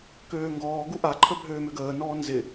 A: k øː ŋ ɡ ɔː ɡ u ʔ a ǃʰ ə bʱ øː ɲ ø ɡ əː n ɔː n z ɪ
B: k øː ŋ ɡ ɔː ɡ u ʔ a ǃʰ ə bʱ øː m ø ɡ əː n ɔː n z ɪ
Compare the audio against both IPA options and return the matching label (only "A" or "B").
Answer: B